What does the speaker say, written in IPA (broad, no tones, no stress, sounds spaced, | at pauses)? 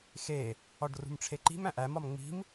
x e | ɒ ɖ r ṳ m ʈ͡ʂʰ e ǃ i̤ m æ̃ ʔ æ m ɒ m ŋ͡m i̤ m